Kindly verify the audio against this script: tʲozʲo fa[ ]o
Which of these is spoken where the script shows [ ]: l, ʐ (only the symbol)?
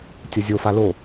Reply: l